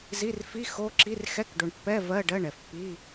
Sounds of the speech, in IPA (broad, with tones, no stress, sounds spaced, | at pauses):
z i˧˥˧ r f i˧˥˧ x o˧˥˧ ǁ i˧˥˧ r x ɛ˧˥˧ k ɖ o˨ ɳ pː ɛ˧˥˧ v ɜ˧˥˧ ɖ ɜ˧˥˧ ɳ ɛ˨ f pː i˧˥˧